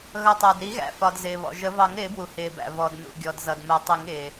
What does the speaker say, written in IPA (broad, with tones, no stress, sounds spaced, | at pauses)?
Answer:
ɣ ʌ˩ tˤ æ˩ d ɾ i˨˩˦ ɣ æ̰˩ f ɒ˩ d z ɪː˩ β ɔ̰˩ ʒ ə˨˩˦ v ɑ˨˩˦ ŋ ɾ ɪː˨˩˦ b w u˩ h ɪː˩ b æ̰˩ v ɔ˩ d n ṵ˩ ɡʲ ɔ˩ d z ʌ˩ d m ə˨˩˦ tˤ i˨˩˦ ŋ ɪː˩